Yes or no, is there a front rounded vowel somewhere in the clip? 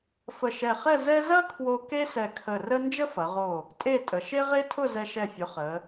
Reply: no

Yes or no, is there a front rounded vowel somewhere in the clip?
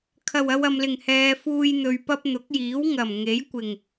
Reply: no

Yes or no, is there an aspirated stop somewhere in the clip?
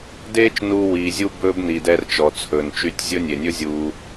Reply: yes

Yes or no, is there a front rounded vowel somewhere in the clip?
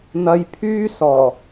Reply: yes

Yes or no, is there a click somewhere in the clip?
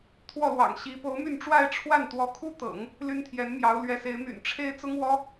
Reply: no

